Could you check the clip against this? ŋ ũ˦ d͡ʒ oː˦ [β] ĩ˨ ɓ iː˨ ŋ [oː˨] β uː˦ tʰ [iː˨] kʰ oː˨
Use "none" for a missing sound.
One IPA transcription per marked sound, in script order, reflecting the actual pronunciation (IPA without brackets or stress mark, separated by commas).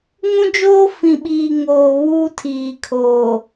f, oː˨, iː˨